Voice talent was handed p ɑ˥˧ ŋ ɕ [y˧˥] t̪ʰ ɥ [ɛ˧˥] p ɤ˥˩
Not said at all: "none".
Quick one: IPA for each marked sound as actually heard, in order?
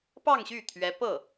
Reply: y˥˩, ɛ˧˥

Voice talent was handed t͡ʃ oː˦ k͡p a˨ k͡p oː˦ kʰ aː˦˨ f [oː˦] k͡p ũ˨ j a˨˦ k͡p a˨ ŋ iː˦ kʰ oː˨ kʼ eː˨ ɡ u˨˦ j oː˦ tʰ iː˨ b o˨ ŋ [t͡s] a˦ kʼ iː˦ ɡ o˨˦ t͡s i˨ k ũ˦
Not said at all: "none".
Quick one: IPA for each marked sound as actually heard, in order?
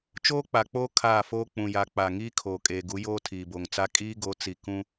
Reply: oː˦, t͡s

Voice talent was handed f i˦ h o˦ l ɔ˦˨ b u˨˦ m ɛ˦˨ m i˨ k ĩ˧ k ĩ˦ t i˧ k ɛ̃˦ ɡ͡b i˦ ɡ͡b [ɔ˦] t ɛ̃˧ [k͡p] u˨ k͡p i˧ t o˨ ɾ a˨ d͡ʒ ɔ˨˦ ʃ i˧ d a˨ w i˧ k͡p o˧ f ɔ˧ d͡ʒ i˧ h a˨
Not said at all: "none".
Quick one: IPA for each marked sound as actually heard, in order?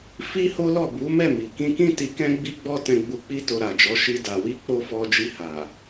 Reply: ɔ˦, ɡ͡b

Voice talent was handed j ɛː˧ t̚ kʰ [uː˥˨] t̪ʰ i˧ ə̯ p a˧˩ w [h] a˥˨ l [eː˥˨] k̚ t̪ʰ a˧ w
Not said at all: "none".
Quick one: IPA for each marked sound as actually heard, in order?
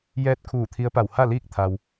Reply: uː˧˩, h, iː˥˨

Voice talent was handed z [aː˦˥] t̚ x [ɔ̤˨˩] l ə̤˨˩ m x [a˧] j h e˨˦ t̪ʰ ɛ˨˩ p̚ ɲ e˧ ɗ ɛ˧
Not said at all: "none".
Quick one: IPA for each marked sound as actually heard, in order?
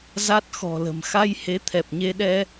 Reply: a˦˥, ɔ̤˨˩, a˧

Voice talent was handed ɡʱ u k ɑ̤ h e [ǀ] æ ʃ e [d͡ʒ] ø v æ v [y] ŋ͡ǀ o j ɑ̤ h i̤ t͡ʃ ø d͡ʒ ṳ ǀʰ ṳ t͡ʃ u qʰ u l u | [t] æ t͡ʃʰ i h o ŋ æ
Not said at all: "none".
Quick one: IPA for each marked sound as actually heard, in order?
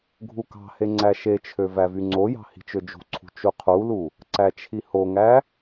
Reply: ŋ͡ǀ, t͡ʃʰ, y, ǀ

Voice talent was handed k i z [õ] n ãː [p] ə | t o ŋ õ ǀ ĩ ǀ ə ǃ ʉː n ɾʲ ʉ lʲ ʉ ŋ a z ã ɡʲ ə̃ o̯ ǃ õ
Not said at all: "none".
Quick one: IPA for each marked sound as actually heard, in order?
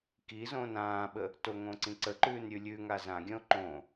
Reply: õː, ɓ

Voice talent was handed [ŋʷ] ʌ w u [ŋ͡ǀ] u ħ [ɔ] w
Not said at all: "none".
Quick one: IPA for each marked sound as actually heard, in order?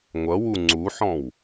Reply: ŋʷ, ŋ͡ǀ, ɔ̃

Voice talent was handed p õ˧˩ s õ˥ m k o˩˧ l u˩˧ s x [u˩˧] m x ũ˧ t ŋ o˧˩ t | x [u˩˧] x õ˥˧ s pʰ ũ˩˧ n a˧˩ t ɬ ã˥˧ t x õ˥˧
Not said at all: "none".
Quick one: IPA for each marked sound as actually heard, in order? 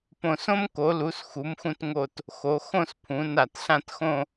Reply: u˩˧, o˩˧

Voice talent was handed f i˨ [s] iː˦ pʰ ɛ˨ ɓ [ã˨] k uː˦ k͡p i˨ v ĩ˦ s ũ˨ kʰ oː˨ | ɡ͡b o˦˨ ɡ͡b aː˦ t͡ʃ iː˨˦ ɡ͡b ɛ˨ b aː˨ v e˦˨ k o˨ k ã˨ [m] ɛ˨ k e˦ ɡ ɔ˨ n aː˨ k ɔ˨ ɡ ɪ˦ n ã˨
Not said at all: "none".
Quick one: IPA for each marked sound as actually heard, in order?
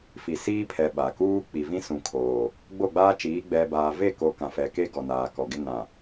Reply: s, a˨, f

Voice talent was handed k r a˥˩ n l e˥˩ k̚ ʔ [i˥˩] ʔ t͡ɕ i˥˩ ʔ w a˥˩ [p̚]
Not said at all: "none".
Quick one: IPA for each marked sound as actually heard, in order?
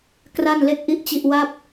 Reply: i˥˩, p̚

